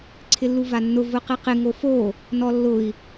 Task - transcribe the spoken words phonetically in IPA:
ǀʰɪlːuvanːʊ vʊqɪqɪ ŋofo | nɔlːʊi̯

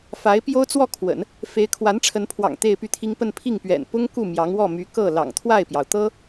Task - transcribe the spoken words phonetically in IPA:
fa˧˥ɪ̯ pjo˥ʊ̯t͡swɔ˥˩kʰwə̰˨˩˦n | fe˧˥ɪ̯kʰwa˧˥nʈ͡ʂʰə˧˥npʰwɑ̰˨˩ŋ t̪e˥˧ɪ̯py˥˩t̪ʰi˥ŋ pə˥˧npʰi˥˩ŋpɥɛ̰˨˩n pʊ˥ŋ ku˥˩ mjɑ˧˥ŋ wɔ˥˩my˧˥kɤ˥˩ lɑ̰˨˩ŋt̪ʰwa˥˩ɪ̯pjɑ˩ʊ̯ t̪ɤ˥

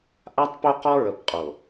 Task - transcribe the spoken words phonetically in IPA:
ʔa˦tˤpo˦qɔ˦ɹə˨p qʼo˨

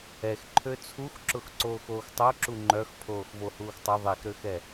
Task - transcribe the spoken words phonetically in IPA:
ɛx ǃʰøt͡sʰuxǁʊx ǀoːxoːxtˤoǁu ŋ͡ǃœxpʰoːx vohuːxtˤœ ðˤexɾøxɛ

